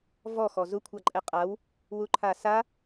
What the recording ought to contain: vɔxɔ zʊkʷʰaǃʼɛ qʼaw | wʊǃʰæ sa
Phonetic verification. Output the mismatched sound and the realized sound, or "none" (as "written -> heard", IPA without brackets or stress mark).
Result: æ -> a